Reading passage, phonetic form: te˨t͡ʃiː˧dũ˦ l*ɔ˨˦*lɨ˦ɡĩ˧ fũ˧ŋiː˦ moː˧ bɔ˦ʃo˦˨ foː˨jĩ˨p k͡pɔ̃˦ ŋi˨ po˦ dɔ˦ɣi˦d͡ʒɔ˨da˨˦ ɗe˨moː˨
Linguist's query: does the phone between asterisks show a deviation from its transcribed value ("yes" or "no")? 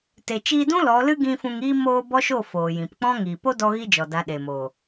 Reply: no